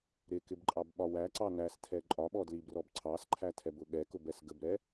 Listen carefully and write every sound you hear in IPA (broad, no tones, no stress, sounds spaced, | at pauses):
ɾ ɪ k ɪ b ǃʼ ɑ b ɓ ɒ w æ ǀ ɑ n æ s tʰ ɛ ǃʼ ɒ ɓ ɔ d l i b r ɔ b ǀʰ ɑ s ǃʰ æ tʰ ɛ b ʊ ɠ ɛ k ʊ b ɛ s ɡ ə b ɾ ɛ